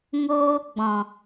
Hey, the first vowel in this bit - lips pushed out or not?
yes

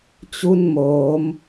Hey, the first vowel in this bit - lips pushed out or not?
yes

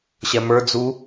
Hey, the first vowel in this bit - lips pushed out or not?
no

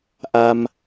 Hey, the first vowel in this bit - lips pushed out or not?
no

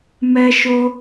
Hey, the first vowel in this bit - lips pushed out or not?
no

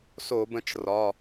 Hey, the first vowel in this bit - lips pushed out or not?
yes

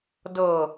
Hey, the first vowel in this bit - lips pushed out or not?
no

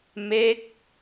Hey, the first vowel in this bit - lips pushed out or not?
no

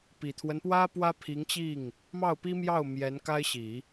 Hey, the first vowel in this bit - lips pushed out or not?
no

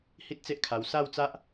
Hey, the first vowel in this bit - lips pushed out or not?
no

